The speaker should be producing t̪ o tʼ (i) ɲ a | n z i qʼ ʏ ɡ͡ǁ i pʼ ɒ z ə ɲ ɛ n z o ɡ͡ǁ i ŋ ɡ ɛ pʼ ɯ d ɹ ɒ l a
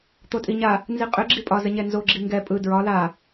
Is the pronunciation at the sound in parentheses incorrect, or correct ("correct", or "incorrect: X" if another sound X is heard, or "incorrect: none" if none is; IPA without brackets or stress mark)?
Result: correct